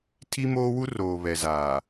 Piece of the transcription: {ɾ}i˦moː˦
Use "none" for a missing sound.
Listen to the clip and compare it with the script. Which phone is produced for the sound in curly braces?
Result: tʰ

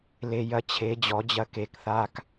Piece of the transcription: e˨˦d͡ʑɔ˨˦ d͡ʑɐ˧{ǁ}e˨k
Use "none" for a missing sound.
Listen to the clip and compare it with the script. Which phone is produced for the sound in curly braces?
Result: k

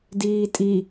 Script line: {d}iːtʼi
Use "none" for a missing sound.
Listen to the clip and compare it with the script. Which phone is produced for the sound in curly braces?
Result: d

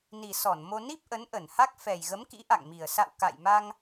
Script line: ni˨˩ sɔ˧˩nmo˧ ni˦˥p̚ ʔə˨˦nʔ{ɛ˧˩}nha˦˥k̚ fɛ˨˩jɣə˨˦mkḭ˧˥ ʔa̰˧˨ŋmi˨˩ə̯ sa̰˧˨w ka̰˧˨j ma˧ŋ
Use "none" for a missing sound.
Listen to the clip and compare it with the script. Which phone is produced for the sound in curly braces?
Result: ə˧˩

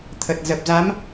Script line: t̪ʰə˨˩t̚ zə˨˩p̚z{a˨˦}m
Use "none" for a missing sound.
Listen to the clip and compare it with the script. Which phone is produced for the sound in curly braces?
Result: a˨˦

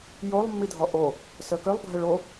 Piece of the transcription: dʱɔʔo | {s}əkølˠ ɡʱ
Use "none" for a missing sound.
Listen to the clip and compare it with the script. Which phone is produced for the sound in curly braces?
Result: s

